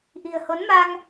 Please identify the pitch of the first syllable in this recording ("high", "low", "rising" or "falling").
low